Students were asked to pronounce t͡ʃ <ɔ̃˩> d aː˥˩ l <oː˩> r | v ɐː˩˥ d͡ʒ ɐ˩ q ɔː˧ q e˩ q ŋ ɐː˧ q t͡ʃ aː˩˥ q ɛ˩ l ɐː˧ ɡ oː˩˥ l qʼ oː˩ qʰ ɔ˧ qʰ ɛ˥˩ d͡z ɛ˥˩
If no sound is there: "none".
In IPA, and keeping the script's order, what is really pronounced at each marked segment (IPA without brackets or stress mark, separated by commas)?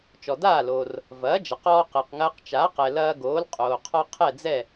ɔ˩, oː˩